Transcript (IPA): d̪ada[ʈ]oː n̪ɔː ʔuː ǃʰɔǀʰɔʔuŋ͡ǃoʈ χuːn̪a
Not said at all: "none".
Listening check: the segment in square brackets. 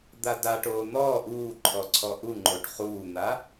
ʈ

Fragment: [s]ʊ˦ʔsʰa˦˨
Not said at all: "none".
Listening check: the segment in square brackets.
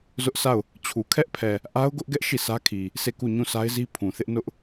z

